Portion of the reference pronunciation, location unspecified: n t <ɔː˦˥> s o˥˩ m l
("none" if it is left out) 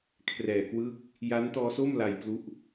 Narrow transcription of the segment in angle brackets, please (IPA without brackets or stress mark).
ɔː˦˥